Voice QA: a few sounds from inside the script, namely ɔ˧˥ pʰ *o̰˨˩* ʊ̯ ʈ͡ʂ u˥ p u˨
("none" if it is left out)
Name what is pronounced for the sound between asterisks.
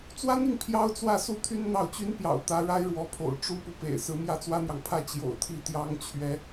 o̰˨˩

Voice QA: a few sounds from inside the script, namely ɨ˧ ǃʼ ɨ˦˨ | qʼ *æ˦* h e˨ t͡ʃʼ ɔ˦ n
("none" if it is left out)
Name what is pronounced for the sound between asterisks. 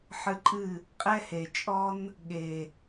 ɛ˦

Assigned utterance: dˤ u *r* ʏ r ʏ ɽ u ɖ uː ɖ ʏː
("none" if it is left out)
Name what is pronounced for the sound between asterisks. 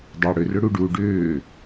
ɽ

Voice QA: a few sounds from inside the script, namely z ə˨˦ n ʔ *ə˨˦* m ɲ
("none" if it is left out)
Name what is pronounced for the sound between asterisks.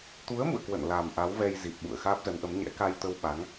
ə˨˦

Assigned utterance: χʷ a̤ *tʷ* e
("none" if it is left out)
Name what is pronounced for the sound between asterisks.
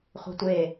tʷ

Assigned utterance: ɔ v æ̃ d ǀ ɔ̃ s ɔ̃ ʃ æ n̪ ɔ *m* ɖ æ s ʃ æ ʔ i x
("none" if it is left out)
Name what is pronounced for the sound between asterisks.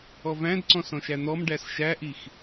m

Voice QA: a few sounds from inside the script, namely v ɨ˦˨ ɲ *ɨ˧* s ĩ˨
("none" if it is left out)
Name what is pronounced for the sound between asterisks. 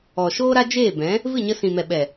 ə˧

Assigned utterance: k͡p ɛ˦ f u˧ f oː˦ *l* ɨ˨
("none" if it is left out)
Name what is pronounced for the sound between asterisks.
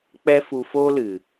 l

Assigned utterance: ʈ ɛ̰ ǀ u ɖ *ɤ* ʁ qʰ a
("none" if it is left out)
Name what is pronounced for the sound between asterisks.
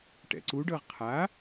ɤ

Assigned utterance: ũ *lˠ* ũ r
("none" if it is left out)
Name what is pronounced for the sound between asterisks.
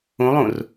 lˠ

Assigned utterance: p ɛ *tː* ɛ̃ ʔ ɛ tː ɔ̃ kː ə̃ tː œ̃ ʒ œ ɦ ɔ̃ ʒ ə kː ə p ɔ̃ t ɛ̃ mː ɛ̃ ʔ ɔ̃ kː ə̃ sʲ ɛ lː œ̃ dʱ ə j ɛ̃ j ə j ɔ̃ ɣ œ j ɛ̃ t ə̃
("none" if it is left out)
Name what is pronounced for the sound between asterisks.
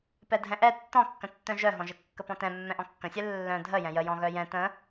dʱ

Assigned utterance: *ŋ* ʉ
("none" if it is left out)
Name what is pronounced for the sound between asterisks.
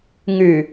ŋ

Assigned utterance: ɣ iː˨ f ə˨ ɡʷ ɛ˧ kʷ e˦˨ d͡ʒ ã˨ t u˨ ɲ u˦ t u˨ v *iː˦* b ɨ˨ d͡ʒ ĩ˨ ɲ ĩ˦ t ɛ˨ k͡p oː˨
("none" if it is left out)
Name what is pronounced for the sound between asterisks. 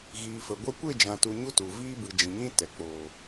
iː˦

